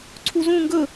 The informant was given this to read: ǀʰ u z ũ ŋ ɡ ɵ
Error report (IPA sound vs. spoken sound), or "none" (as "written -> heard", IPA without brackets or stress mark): none